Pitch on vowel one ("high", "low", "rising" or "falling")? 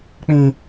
high